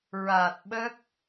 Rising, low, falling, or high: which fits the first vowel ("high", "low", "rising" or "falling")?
low